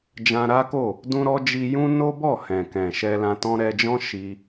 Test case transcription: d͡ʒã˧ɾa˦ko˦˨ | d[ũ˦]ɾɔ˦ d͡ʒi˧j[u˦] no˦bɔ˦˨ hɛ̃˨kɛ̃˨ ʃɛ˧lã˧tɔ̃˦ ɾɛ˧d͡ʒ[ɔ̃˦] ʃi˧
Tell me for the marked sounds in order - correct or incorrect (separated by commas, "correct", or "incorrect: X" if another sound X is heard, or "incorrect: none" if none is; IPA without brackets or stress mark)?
correct, incorrect: ũ˦, correct